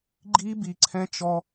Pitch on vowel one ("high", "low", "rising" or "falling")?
high